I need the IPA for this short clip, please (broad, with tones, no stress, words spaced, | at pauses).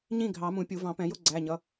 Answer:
ɲĩ˥˨ɡʱɑ˨˩˦mũ˨˩˦ pʲu˨˩˦vɑ̃˨˩˦pɛ̃˨˩˦ jʊ˥˨ɡ͡ǀæ˩˧˩ɲʌ˩˧˩